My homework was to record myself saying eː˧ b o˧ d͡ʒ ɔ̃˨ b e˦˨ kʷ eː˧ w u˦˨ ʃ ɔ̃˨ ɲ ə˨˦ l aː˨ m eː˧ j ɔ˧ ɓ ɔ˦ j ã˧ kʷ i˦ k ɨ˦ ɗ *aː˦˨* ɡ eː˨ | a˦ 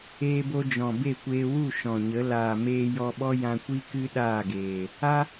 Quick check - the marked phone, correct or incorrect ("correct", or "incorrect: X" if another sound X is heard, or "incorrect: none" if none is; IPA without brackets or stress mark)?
correct